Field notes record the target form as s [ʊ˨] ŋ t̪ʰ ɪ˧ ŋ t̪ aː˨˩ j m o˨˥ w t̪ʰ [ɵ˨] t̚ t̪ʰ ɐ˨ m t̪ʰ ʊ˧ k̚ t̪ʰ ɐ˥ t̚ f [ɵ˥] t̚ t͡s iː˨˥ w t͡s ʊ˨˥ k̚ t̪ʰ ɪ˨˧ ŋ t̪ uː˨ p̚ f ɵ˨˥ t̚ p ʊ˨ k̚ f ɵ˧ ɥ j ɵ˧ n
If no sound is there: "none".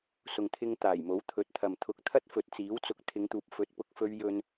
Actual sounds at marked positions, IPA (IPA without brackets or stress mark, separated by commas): ʊ˨, ɵ˨˥, ɵ˨